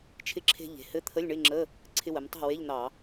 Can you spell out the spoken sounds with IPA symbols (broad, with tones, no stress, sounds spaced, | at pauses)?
t͡ʃʰ ɪ˧˥˧ ǁʰ e̤˧ ʎ e̤˩˥ h ɘ˧˥˧ t̪ʰ ə˧˥˧ lʲ ɳ ɪ˧˥˧ ŋ͡ǁ ə˧˥˧ | ǀʰ ɪ˧ w ə˩˧ m tˤ a̤˥˩ w e˧˥˧ ʎ n̪ ɑ˧˩˧